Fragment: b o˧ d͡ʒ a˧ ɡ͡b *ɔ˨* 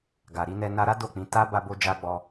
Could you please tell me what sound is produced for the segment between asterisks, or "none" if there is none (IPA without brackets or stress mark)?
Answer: ɔ˧